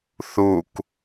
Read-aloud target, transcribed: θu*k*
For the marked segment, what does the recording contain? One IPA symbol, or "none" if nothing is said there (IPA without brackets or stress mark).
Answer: k